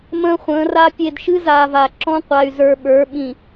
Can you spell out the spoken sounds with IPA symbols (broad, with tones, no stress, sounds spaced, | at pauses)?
m ə̃ː˦ χʷ ə̃ː˨˦ r a˦ pʲ e˨ d ʃ ɨ˦ z aː˨ v a˨ ǁ ɔ̃˦ qʷ a˨ y̯ z ə˞˨ ɓ ə˞˨˦ ɓ ĩ˨